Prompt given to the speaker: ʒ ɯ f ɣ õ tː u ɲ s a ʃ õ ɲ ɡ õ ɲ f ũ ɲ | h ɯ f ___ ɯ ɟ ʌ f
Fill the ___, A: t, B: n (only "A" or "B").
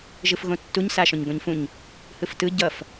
A